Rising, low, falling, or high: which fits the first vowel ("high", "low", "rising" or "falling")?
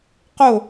falling